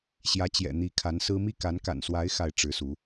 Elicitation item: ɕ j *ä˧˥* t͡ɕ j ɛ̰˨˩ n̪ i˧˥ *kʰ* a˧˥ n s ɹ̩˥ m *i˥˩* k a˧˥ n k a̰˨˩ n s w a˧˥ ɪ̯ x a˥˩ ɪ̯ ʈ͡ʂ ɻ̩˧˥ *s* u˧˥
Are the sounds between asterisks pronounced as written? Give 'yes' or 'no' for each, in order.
yes, yes, yes, yes

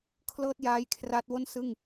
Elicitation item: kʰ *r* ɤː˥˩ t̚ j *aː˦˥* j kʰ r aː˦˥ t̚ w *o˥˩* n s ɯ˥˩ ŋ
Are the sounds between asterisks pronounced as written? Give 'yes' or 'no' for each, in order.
no, yes, yes

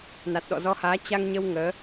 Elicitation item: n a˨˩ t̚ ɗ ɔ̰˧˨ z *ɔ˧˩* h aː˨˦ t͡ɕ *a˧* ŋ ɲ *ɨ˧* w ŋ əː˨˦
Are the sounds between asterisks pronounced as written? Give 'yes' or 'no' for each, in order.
no, yes, no

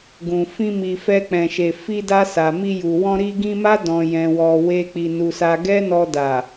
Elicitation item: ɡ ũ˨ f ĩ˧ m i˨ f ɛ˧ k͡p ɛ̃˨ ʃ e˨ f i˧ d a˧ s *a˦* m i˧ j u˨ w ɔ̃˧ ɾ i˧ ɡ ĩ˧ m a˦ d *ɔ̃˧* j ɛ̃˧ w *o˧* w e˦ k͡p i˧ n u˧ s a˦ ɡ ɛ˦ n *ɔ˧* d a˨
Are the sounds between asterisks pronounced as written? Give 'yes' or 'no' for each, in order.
no, yes, no, yes

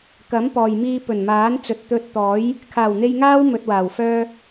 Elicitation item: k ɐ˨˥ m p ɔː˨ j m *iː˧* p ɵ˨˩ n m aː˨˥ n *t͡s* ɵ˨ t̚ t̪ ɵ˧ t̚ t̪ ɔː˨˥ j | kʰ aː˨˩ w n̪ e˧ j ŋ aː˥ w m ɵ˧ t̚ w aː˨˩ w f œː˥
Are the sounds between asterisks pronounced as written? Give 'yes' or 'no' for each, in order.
yes, yes

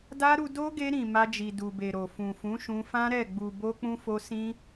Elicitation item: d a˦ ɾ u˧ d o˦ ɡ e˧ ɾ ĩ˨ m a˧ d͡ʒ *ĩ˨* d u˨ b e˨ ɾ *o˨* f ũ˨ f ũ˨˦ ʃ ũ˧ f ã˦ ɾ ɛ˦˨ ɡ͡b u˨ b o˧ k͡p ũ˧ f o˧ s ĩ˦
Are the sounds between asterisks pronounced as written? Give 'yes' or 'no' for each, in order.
no, yes

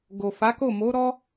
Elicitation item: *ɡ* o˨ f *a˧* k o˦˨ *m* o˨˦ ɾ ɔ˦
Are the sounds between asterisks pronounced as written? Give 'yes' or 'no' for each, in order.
yes, no, yes

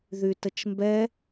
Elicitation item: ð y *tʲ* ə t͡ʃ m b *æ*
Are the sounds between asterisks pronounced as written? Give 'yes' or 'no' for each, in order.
no, no

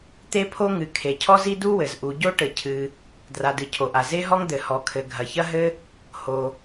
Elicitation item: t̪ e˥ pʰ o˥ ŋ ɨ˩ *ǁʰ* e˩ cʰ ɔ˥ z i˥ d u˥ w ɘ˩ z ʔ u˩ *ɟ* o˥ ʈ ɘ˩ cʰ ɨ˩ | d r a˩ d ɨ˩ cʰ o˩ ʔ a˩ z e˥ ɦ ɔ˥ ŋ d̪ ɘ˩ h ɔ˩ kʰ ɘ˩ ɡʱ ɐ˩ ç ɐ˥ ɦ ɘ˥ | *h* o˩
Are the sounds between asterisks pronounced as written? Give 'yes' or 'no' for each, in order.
no, yes, yes

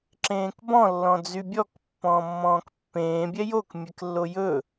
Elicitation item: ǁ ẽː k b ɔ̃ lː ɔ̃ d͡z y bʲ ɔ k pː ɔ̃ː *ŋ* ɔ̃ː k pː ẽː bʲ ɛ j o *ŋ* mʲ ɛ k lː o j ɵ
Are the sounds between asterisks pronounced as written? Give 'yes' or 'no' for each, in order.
no, no

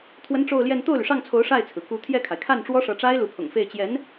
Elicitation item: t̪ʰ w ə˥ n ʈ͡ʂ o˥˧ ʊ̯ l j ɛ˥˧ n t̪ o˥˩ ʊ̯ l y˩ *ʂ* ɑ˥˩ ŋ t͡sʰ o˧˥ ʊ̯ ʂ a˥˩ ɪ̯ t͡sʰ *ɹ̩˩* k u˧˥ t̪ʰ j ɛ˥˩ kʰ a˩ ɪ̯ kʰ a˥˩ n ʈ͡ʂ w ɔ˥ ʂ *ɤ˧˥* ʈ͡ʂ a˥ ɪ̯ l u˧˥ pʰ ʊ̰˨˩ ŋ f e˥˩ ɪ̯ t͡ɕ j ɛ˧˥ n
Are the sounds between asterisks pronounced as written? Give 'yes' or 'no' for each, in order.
yes, yes, yes

